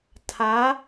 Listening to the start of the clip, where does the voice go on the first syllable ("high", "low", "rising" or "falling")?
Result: rising